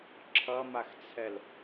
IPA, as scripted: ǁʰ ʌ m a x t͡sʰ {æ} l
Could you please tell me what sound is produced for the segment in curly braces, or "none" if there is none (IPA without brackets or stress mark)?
ɛ